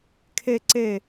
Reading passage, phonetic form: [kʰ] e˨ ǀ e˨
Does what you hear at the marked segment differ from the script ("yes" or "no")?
no